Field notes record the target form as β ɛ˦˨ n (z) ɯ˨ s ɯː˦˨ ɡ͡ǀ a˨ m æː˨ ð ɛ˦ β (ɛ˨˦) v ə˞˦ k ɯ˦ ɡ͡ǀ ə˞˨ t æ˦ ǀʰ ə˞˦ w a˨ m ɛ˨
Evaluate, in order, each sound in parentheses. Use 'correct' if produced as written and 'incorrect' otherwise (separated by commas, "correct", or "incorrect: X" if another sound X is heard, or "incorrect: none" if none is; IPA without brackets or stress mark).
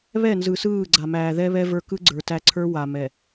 correct, incorrect: ɛ˦